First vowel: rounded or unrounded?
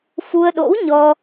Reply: rounded